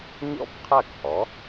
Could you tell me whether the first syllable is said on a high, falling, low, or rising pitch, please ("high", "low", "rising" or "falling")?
falling